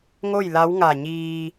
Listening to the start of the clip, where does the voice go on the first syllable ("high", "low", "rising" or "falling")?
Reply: falling